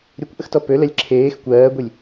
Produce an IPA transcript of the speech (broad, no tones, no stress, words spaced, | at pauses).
ɾʲokʷʔəxtɔ pølɛlʲ ǁʰeːx kʷɜːɡʷilʲ